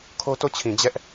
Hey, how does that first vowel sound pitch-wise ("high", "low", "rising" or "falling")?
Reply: high